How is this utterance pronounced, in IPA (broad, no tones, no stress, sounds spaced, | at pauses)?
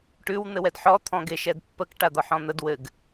ʈ ʉ w n̪ ɘ w ɛ d ħ ɔ t̪ʰ ɔ̃ ɡ e ʃ ɛ d pː ə k ʈ a d̪ ɒ ħ ɔ̃ n̪ ə d w ɘ ɡ